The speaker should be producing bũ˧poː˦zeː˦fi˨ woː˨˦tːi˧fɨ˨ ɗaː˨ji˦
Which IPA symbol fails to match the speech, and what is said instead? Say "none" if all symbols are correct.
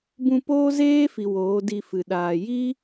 tː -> d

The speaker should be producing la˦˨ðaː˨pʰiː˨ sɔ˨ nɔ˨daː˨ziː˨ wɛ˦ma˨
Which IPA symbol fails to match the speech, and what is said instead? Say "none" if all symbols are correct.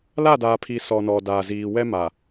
ð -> d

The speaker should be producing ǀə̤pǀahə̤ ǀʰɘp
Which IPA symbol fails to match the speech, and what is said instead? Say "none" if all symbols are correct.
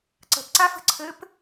h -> f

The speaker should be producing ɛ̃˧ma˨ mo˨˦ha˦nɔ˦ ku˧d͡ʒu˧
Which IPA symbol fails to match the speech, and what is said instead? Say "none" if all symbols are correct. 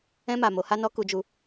none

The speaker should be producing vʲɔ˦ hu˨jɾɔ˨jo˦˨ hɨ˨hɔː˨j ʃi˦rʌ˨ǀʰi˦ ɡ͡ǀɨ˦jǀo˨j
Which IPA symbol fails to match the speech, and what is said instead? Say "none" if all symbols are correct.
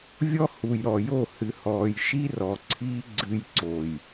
ʌ˨ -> ɔ˨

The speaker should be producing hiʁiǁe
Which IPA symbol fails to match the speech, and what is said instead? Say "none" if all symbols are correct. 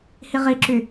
e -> y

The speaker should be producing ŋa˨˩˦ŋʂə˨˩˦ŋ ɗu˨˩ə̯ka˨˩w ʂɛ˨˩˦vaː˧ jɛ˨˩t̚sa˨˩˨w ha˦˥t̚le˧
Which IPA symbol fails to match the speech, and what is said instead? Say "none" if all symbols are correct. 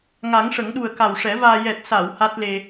none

